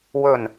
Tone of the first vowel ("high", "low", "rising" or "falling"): low